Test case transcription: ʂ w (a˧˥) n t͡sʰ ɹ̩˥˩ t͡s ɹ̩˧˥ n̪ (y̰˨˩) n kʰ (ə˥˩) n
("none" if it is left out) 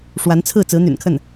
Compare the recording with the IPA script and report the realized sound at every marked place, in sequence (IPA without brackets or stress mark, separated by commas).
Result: a˧˥, y̰˨˩, ə˥˩